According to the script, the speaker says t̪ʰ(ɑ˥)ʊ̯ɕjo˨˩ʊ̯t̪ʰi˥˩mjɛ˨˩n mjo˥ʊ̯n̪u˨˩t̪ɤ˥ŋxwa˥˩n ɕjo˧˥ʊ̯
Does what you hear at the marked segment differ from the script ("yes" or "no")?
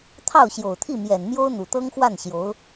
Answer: yes